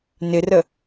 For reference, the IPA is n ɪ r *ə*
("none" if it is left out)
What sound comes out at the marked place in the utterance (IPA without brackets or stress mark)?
ə